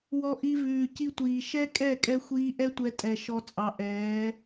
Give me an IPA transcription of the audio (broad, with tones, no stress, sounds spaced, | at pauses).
w ɔ˧ ʔ i˧ v ʉː˨ c i˧ tʷ iː˨ ʃ ɛ˦ kʼ ɛ˦˨ kʼ ɛ˧ xʷ iː˧ ʔ ɛ˦ tʷ ɛ˧ tʼ ɛ˨ ʃ ɔ˧ t͡sʼ ɑ˨ ʔ ɛː˨˦